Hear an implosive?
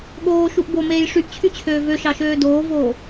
yes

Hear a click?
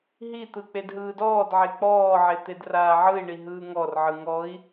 no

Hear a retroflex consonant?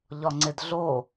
no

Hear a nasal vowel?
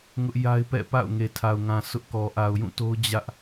yes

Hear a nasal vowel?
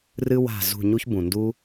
yes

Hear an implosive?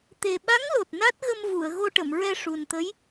yes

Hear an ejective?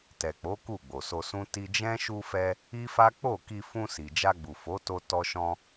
no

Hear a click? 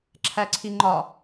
yes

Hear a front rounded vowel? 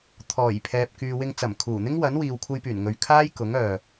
yes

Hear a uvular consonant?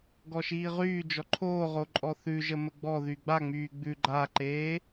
yes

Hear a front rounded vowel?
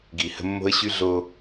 yes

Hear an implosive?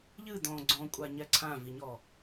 no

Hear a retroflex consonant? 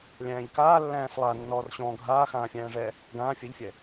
yes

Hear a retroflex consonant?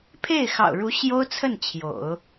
yes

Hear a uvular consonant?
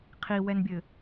yes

